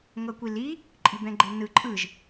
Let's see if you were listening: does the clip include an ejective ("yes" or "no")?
yes